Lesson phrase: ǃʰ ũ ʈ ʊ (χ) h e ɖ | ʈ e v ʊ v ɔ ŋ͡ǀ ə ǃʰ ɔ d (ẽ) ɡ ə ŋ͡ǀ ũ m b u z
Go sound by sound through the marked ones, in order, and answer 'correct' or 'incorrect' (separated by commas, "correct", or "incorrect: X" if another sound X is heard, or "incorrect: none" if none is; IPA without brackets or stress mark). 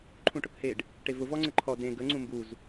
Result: incorrect: k, correct